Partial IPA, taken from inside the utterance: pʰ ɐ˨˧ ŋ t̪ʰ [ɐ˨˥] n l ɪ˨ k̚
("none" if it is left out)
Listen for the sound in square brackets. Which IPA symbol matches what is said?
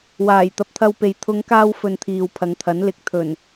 ɐ˨˥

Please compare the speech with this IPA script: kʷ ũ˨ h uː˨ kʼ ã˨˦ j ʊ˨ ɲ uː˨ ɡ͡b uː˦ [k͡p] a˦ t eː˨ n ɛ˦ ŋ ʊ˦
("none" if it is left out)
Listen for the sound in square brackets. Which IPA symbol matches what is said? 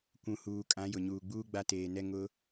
ɡ͡b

